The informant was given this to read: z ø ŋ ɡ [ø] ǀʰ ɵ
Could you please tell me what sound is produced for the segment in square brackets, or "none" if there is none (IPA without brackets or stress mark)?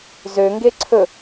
e